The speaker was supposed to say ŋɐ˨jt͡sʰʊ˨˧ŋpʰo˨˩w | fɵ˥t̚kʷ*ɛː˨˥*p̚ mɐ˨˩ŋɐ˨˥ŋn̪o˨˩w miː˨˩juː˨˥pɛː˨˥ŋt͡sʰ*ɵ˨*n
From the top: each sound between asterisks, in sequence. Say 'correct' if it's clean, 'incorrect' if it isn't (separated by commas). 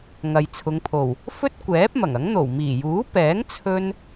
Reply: correct, incorrect